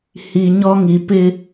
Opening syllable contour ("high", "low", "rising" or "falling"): low